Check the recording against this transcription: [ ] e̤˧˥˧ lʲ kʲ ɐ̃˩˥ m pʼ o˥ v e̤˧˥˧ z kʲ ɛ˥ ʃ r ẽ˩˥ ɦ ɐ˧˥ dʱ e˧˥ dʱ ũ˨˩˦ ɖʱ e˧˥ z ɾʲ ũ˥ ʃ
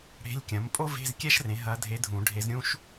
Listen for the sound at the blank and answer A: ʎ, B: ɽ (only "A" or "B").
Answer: B